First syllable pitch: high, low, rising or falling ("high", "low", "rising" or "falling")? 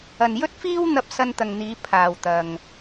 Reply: low